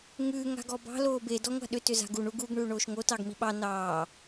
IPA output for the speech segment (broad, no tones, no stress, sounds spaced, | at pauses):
ŋ ʉː ŋ a̤ ɡ ɔ b ɑ̤ l oː b e d ɔ ŋʷ a̤ ɗ ʏ t ʏ z a̤ ɡ u ɳ u ɡ u ɡ ɳ ʉː ɳ oː ʃ ŋ o t ɑ ɡ m i ɓ ɑ n ɑː